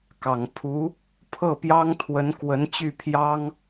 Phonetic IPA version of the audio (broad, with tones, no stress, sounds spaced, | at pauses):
k ɑ˨˩ ŋ pʰ u˧˥ | pʰ ɤ˥˩ p j ɑ˥ ŋ t̪ʰ w ə˧˥ n k w ə˧˥ n t͡ɕ y˥˩ pʰ j ɑ˥ ŋ